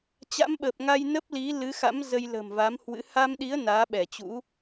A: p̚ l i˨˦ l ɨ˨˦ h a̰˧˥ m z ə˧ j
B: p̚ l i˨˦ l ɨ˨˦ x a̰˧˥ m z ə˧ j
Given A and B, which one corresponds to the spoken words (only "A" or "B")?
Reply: B